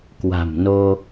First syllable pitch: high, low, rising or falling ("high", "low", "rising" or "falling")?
low